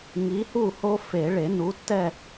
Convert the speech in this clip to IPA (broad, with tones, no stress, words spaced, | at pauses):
ŋi˨˥hu˥˨ho˦ fe˨˩˦ɭe˨˩˦nu˨˥tːɛ˥˨